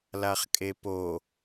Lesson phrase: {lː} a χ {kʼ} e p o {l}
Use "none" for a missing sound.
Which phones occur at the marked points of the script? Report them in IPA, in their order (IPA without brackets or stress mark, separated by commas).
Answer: l, kʼ, none